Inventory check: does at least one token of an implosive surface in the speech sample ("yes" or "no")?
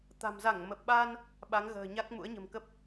yes